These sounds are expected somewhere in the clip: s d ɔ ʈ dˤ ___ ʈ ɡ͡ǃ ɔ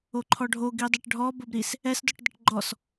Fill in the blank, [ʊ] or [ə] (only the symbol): ə